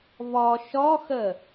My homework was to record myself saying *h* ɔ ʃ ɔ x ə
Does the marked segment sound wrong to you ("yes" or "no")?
yes